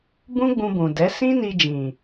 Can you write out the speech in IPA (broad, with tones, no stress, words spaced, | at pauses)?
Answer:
bũ˦ɡ͡bũ˧bũ˨dɛ˨˦ sĩ˦ni˧d͡ʒĩ˨